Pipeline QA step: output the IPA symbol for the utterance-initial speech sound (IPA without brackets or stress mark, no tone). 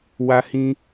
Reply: w